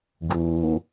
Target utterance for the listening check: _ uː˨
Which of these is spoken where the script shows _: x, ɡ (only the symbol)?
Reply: ɡ